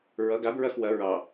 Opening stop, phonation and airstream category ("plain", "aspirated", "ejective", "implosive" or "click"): plain